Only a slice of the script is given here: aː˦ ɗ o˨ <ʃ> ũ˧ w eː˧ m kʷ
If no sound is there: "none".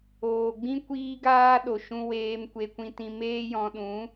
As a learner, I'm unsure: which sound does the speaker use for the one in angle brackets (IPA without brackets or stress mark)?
ʃ